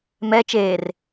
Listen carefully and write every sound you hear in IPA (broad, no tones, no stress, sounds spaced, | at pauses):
m ɛ t͡ʃ eː r